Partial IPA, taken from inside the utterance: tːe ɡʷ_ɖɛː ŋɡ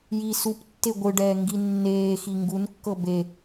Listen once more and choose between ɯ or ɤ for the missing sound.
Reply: ɯ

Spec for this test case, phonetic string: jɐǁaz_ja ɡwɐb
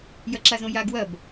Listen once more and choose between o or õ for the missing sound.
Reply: õ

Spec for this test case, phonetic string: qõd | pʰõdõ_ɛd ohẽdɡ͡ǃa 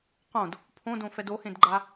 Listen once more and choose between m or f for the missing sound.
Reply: f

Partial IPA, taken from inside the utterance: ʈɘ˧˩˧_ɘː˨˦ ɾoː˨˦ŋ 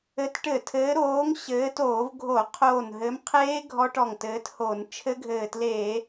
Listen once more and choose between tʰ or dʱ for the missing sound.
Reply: tʰ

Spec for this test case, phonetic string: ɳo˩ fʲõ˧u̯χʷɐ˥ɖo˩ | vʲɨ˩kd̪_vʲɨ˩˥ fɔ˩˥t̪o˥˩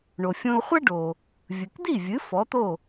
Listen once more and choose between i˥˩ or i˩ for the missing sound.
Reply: i˥˩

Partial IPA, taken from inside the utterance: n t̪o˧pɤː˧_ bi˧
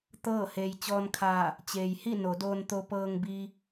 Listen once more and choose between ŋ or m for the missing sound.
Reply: ŋ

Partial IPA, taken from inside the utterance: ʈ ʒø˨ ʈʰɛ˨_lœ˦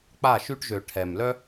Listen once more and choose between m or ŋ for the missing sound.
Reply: m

